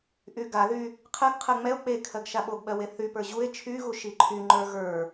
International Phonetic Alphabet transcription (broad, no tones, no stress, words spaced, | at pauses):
ʔyɡaðy | qʰɜɡqʰɜ ŋ͡mɛo̯ k͡pekʰɜɡ ʃaɓoɡɓɜ weθypə˞ ʑue̯ t͡ʃʰyɣu ʃiǃʰyŋ͡ǃə˞ ɣə˞